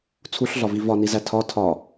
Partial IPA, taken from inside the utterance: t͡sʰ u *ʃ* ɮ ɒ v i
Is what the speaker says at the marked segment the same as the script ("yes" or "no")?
no